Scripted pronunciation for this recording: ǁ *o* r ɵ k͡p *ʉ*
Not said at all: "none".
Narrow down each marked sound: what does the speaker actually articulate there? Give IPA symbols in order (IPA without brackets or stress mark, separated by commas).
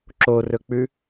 o, ʉ